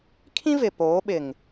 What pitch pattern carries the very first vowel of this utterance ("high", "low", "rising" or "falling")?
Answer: high